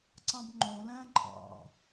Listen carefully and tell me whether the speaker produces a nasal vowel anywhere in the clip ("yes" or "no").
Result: yes